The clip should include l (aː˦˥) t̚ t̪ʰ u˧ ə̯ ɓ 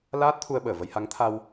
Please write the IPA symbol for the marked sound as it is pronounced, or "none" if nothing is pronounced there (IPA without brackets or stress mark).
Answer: aː˦˥